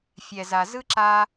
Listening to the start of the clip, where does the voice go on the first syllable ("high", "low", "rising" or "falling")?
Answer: low